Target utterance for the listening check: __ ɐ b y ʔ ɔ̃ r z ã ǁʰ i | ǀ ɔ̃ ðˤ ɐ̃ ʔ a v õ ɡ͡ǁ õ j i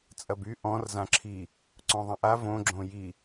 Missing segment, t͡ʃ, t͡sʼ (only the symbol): t͡sʼ